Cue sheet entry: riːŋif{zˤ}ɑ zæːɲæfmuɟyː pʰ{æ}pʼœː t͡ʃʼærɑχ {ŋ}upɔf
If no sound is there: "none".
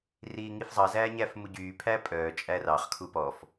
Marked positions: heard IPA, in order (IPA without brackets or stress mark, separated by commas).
zˤ, æ, kʰ